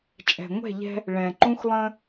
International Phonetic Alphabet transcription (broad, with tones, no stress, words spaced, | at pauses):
t͡ʃʼɛ̤˨ŋʷɛ̤˦˨ʎɛ̤˦ | ɭɛ̃˨ǃũ˦xlˠə̃˦